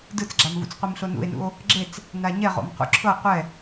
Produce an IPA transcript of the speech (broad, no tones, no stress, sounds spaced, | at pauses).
d ɯ t͡s ɡ͡ǁ a m v ṵ t͡s qʷ i m ɬ o n ṵ e̯ n ṵ o̯ | ɡ͡ǁ e t͡s | n a ɲ ɛ ʁ o̰ m q ṵ ǁʰ ɤ qʷ ɛ